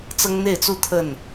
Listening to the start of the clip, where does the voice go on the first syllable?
high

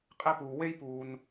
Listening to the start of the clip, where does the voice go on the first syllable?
high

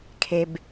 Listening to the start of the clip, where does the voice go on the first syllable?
low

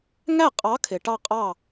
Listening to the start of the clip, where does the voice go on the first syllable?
falling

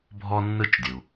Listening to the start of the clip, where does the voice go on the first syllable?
high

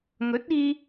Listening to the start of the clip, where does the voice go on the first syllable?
rising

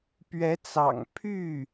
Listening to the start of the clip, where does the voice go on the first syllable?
rising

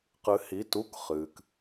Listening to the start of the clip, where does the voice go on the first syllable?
rising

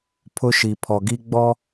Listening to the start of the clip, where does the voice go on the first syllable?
high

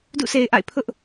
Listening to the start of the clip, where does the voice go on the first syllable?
falling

